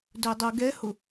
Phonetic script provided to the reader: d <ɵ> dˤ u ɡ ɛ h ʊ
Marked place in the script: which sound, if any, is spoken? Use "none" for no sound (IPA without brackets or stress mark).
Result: ɵ